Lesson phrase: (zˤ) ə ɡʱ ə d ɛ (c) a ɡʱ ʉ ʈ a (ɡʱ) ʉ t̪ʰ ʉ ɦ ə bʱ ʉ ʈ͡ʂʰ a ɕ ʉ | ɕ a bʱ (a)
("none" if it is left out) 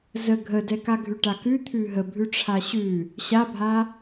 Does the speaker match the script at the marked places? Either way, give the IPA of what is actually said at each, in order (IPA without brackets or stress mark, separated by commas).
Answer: z, k, k, a